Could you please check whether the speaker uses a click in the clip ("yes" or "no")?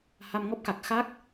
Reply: no